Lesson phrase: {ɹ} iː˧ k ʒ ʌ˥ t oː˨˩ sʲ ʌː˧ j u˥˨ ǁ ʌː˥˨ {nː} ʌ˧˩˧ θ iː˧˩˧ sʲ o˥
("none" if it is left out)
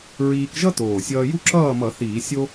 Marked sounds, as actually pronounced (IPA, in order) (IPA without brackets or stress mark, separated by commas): ɹ, m